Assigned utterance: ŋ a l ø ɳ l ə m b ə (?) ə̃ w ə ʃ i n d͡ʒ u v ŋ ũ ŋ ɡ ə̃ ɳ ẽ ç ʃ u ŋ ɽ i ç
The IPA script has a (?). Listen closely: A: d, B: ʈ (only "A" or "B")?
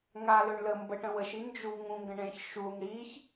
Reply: B